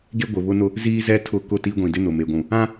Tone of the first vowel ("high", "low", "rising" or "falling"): high